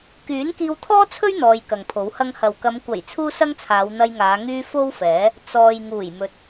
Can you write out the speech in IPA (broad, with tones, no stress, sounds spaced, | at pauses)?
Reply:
k yː˨˥ n k iː˧ w t̪ʰ ɔː˥ t͡sʰ ɵ˥ ɥ n̪ ɔː˧ j k ɐ˨ ŋ pʰ o˨˥ w h ɐ˧ ŋ h ɐ˨ w k ɐ˨˧ m kʷ ɐ˨˩ j t͡sʰ uː˥ s ɐ˥ ŋ t͡sʰ aː˨˧ w n̪ ɐ˧ j ŋ aː˨˧ ŋ yː˥ f o˥ w f ɛː˨˥ | t͡s ɔː˨ j ŋ uː˨˩ j m ɵ˨ t̚